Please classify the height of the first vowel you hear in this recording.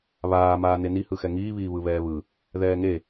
low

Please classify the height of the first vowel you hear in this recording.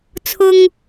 high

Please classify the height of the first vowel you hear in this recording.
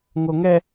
mid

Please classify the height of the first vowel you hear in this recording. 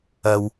low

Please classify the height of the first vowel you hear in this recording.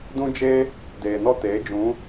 high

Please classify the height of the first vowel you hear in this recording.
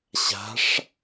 low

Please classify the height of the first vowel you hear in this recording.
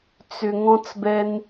high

